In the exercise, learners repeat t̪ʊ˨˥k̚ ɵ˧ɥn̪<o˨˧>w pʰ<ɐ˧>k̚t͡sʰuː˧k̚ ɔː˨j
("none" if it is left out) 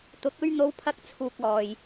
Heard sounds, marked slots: o˨˧, ɐ˥

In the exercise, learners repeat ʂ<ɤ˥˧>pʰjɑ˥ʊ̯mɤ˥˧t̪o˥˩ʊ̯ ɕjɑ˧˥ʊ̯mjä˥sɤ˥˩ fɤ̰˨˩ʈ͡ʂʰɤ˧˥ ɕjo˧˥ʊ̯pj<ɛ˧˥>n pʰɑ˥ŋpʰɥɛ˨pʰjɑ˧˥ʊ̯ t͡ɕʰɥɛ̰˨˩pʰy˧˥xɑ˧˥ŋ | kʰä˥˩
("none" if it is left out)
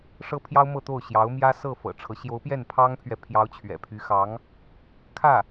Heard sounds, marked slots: ɤ˥, ɛ˥˩

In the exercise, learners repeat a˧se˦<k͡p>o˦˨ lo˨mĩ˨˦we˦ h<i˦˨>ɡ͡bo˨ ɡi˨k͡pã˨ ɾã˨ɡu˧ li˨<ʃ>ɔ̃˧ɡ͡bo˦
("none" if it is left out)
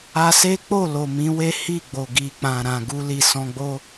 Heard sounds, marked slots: k͡p, i˦˨, s

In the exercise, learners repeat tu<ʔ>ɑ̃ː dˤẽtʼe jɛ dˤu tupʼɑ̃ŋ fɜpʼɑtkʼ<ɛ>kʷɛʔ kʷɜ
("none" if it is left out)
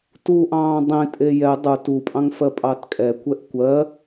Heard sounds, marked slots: ʔ, ɛ

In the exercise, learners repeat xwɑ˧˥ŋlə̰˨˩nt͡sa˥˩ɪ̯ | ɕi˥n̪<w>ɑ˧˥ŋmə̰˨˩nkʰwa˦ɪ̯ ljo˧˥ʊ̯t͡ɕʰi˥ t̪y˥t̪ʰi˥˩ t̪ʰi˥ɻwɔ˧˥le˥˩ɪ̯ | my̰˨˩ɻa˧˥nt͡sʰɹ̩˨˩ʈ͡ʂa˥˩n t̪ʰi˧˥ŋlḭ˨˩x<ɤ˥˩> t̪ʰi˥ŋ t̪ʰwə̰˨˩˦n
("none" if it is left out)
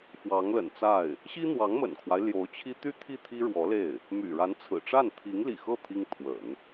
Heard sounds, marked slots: w, ɤ˥˩

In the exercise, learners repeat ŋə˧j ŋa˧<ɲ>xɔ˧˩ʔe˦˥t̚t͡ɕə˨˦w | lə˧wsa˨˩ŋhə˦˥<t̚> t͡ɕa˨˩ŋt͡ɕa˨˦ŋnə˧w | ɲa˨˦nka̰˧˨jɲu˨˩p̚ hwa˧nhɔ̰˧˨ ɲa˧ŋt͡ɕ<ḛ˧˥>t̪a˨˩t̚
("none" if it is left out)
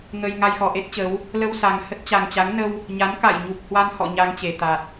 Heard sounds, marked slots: j, t̚, e˧˩

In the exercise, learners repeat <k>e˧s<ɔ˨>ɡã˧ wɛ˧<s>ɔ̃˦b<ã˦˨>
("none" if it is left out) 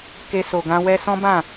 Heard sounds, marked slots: k, o˨, s, ã˦˨

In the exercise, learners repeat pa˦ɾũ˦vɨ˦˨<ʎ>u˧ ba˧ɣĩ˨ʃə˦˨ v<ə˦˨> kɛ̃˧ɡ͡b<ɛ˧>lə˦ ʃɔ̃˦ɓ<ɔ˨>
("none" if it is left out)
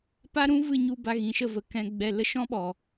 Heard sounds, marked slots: ɲ, ə˨, ɛ˧, ɔ˨

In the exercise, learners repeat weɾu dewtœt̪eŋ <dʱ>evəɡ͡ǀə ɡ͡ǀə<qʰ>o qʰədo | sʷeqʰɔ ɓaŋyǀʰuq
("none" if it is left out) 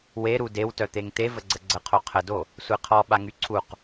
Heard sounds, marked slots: t̪, qʰ

